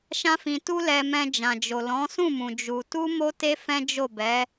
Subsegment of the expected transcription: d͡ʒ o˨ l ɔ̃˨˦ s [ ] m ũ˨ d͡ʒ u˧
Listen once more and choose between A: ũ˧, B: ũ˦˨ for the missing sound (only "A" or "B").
B